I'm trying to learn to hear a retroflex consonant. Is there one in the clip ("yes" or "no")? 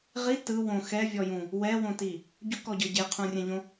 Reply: no